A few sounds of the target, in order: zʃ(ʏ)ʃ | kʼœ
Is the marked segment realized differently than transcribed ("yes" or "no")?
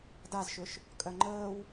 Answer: no